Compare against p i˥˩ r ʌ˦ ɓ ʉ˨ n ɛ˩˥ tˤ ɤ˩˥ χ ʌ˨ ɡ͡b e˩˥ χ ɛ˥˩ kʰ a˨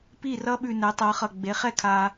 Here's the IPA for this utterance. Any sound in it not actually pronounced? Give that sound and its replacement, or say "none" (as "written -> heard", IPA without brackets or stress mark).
none